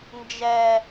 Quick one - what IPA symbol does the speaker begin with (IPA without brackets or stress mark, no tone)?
n